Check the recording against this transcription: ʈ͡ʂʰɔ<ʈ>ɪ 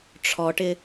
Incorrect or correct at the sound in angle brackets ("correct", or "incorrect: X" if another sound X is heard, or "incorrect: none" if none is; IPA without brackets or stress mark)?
correct